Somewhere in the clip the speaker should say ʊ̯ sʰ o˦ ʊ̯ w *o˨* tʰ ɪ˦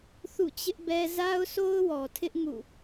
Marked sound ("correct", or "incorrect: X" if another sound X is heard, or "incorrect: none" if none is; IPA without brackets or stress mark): incorrect: ɔ˨